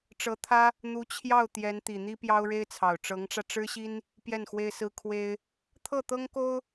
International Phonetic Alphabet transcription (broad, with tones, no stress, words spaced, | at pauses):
ʈ͡ʂɤ˧˥t̪ʰä˥ | n̪u˧˥ t͡ɕʰjɑ˥˩ʊ̯ t̪jɛ˧˥nt̪i˨˩ n̪i˥pjɑ˥ʊ̯ɻe˥ɪ̯t͡sʰɑ˨˩ʊ̯ ʈ͡ʂɤ˧˥ŋʈ͡ʂä˧ ʈ͡ʂɻ̩˥ɕi˥n | pjɛ˥˩nxwe˥ɪ̯sɹ̩˥ kʰwe˥ɪ̯ | t̪ʰɤ˥˩t̪ɤ˥ŋko˥ʊ̯